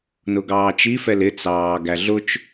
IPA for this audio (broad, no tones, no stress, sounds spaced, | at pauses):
n ʊ ɡ ɑː t͡ʃ i f ɛ l ɪ t͡s ɑː ɡ æ ɮ ʊ t͡ʃ